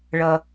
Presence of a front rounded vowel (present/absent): absent